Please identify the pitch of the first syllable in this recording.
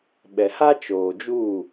low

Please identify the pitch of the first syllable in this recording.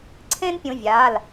high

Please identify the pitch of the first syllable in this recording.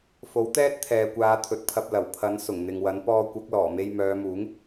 rising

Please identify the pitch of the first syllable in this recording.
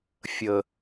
low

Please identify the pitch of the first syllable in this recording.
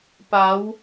rising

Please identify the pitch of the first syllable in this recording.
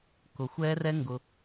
low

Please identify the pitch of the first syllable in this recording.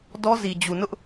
high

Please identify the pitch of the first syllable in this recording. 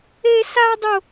high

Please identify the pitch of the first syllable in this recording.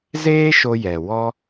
high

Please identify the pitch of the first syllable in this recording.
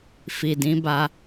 low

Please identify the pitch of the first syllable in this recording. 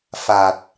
low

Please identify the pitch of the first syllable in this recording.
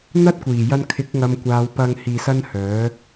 high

